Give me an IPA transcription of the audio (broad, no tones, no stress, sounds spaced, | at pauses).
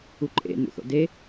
u ǃʼ ḛ n ṵ θ o̰ d e